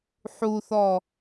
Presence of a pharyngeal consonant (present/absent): present